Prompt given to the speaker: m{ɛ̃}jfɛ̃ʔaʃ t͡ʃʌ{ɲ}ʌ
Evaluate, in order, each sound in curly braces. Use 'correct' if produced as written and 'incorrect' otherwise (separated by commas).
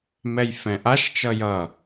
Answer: incorrect, incorrect